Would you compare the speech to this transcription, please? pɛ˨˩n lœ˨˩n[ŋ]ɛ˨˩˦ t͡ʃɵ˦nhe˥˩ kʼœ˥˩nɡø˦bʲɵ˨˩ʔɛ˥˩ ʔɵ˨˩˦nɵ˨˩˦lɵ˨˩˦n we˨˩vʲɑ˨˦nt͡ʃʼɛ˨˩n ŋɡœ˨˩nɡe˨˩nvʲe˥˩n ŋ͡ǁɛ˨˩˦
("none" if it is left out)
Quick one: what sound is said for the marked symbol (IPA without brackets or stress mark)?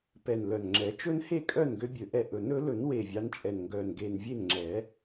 ŋ͡ǁ